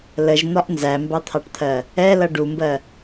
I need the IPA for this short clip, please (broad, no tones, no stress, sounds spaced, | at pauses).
l ə ʒ n̪ ɒ ʔ n z æ m b ɑ t̪ʰ ɑ ʈ t̪ʰ ɜ | ɛ l ʌ ɖ u m b ɜ